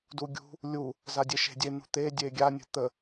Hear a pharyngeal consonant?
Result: no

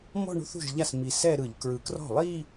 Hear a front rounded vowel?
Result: no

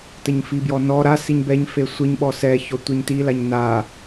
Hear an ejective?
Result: no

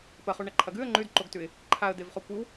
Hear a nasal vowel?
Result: no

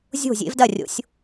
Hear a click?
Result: no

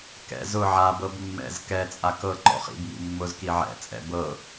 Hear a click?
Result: yes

